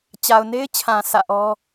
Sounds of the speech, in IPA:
t͡ɕa˨ʊ̯ne˦ɪ̯t͡ɕʰã˨ sä̰˦˨ʔɔ˦

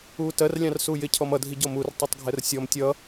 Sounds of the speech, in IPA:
uːtɜrlʲɑ̃r suːjɪcʰɔm ʌdʱi ɟɔmur tˤutˤɡʱɛrsʲɔm tʲʌ

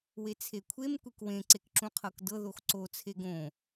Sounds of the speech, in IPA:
wet͡sʰekʷʰem kʷekwẽ ǀekǁũqʰɤkdɤ ðoxǀot͡sʰe ɡõ

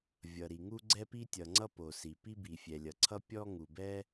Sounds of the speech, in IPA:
vʲʌ˩ɾi˩ŋu˥ ɡ͡ǀɛ˥pi˥tʲʌ˩ŋ͡ǀʌ˥ po˩si˩ pi˥bi˩ fʲɛ˩lʲʌ˩ǀʰʌ˥ pʲɔ˥ŋu˩bɛ˥

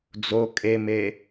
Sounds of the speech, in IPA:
d͡zo kʼeme

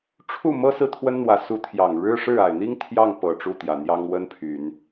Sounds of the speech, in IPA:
ʈ͡ʂʰu˥˩mɤ˥ sɹ̩˥˩t̪ʰwə˥nn̪wä˧˥ su˧˥t̪ʰjɑ˨˩ŋ ɻɻ̩˥ʂɻ̩˥˩ a˨˩ɪ̯n̪i˥ŋ t̪ʰjɑ˥˩ŋpɤ˨˩ ʈ͡ʂu˥˩t̪jä˨˩n̪jɑ˥ŋ wə˥npʰy˨˩˦n

